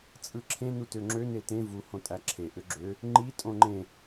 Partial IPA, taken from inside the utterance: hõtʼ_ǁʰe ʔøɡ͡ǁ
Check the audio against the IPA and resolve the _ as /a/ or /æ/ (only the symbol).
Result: æ